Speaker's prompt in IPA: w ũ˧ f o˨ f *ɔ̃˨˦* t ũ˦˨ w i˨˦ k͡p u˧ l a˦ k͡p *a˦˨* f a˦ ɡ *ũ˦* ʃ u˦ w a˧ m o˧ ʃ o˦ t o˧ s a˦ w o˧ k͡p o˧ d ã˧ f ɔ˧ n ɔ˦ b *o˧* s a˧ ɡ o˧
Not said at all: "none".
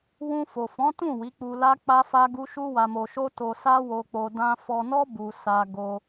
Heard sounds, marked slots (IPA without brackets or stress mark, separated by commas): ɔ̃˨˦, a˦, u˦, u˧